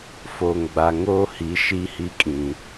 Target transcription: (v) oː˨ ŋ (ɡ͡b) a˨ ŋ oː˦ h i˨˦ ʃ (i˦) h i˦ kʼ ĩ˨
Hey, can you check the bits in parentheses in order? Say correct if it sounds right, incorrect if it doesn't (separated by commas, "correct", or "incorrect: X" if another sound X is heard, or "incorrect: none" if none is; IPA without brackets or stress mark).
incorrect: f, correct, correct